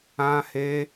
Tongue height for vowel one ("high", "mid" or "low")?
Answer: low